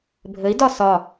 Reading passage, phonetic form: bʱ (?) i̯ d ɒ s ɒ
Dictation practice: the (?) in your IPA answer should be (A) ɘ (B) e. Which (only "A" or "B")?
A